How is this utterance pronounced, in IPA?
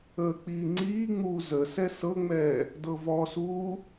əː k͡p iː ŋ͡ǀ iː ŋ͡m uː z ə s ɛ s ɤ ŋ͡m ɛː | d ɤ v ɔ s uː

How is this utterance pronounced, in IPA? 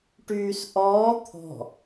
ʈ yː s ʔ ɔː t̪ʰ ɔ̤

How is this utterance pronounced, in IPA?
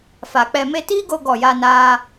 f a˨ k͡p ɛ˧ m e˧ t iː˦ ɡ o˧ ɡ ɔ˦˨ j a˦ n aː˦

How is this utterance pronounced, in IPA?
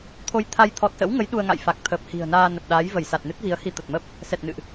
t̪ʰ o˧ j t̪ʰ a˧ j t̪ʰ ɔ˨˩ t̚ s ə̰˧˥ w ŋ ə˨˦ j ɗ u˧ ə̯ ŋ a̰˧˨ j f a˨˩ k̚ t̪ʰ əː˨˩ p̚ h i̤˨˩ ə̯ n aː˧ n ə˨˩ p̚ ɗ aː˨˦ j v ə˧˩ j s a˨˩ t̚ n ɨ˦˥ t̚ v i˨˦ ə̯ h i˧ t̪ ə˨˩ t̚ m ə˦˥ p̚ | s ɛ˨˩ t̚ n ɨ̰˧˨ ʔ

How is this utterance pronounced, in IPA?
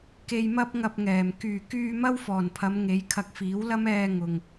k e˧ j m ɐ˥ p̚ ŋ ɐ˧ p̚ ŋ ɛː˨˩ m k yː˨˩ k yː˧ m ɐ˥ w f ɔː˨˩ n pʰ ɐ˨˧ m ŋ e˨˧ j kʰ ɐ˧ k̚ f iː˨˥ w l ɐ˥ m ɛː˧ ŋ ʊ˨ ŋ

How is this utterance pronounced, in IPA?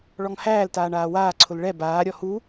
ɭ ɔ ŋ h æː l t aː ɳ aː w aː ǀʰ ʊ l ɭ ɛ b aː ɾʲ ɔ h u

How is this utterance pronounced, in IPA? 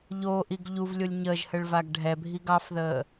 ʎ o ʔ i ɡ ʎ u v lʲ o lʲ ɲ əː ʒ h ə ɭ v a ɡ ɖʱ ɛ bʱ i ɡ ɑ f ð əː

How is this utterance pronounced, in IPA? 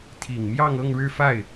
t̪ʰ i˨˩ ŋ m j ɑ˥˧ ŋ ɤ˥˧ ŋ ɻ ɻ̩˥˧ f a˥˩ ɪ̯

